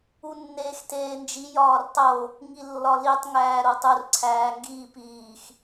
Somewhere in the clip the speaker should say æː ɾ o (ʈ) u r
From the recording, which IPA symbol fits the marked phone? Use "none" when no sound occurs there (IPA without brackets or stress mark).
tˤ